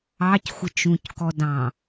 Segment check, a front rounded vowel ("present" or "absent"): absent